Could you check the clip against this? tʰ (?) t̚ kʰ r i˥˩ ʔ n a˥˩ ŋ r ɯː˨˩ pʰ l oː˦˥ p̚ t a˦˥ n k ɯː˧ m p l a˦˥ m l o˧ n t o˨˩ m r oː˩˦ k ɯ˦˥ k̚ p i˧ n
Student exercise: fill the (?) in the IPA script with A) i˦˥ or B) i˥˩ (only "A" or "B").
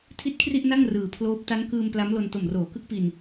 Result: A